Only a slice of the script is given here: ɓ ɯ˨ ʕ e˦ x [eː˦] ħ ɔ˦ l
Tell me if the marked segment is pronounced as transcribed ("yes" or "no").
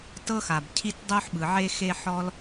no